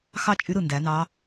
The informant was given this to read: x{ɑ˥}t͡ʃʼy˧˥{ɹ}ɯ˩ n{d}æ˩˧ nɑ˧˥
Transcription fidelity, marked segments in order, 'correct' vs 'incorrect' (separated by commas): correct, incorrect, correct